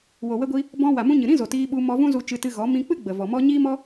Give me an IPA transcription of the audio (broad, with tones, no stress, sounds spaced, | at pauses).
w o˨ w ə˧ ɡʷ i˧ | b ɔ̃˧ w a˨ m ũ˧ ɲ ɨ˨ ɾ ĩ˦ z o˨ t iː˧ ɓ u˧ m ɔ˧ v ũ˦ z u˧ t͡ʃ ɨ˧ t ɨ˧ ɣ ɔ˨˦ m ĩ˧ k͡p ɨ˦ ɡ͡b ə˨ v ɔ˨ m ɔ˦ ɲ iː˦ m ɔ˦